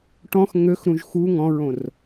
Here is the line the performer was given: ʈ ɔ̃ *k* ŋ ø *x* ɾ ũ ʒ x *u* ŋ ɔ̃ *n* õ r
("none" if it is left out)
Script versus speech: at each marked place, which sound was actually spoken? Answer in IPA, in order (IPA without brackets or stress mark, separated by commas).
x, x, u, ɹ